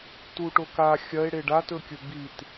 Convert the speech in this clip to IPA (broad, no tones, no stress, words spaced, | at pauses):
tuʈoka xʲɐe̯ ɽeɖatɵkʲɵ bit